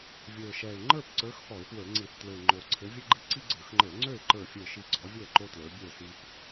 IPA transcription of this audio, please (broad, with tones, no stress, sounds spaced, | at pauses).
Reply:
vʲ ə˞˨˩ ʃ ɛ˨˩ ɪ̯ ŋ͡ǃ ə˞˥˨ p ǀ ə˞˨˦ x p ɔ˧˩˧ ɪ̯ p w ə˞˧˩˧ ŋ͡ǀ i˧˩˧ θ t l ø˨˩ ɪ̯ ŋ͡ǃ o˨˩ ǀʰ ɘ˨˦ vʲ ɘ˦ ɡ͡ǃ i˦ ǀ i˦ ɡ͡ǀ ə˞˧˩˧ x ŋ͡ǃ ə˞˧˩˧ ŋ͡ǀ ø˥˨ ɪ̯ ǃ ə˞˥˨ fʲ ə˞˥˨ ʃ i˥˨ ɡ͡ǀ ɔ˨˦ vʲ o˥˨ ə̯ ǃ o˦ t l ə˞˨˦ bʲ ə˞˥˨ s i˦ p